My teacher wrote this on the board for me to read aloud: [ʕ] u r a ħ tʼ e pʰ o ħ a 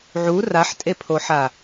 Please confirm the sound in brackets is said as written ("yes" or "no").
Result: yes